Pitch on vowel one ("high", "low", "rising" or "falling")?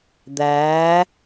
rising